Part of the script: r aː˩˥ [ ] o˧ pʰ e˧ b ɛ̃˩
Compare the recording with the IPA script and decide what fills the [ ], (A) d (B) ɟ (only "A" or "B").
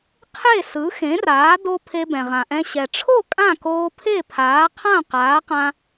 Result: A